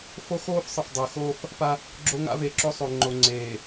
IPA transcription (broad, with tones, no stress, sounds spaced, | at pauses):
f o˦ x oː˦ f sˤ ə˨ f dˤ e˨ x oː˦ f | p a˦ | ɡ͡ǁ o˦ ŋ a̰˦ v e˨ ǁ o˦ sˤ o˨ ŋ͡ǃ o˨ ŋ͡ǀ eː˨